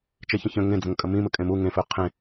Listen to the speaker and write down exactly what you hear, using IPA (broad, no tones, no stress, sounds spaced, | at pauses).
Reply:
t͡ʃ e ç ə̃ ç ə̃ ŋ ẽ d͡z ə̃ ŋ kʼ ə m ĩ m ə kʼ ẽ m u ŋ ẽ f ø qʰ ẽ